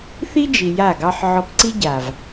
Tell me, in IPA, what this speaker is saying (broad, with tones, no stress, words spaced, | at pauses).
θi˦d͡ʒi˨ ja˦˨ɡɑ˦ħ ʕɔ˧p ǀi˦ɟa˨v